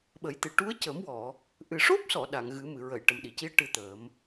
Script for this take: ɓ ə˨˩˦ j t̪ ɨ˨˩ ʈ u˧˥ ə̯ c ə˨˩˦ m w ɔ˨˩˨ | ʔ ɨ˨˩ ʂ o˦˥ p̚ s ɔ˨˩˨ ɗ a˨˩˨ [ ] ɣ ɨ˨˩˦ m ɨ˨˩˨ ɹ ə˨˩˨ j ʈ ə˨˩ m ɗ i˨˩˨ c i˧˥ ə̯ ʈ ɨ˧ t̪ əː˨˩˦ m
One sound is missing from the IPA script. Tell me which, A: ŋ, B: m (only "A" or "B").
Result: A